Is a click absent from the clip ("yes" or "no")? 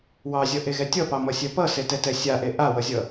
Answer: yes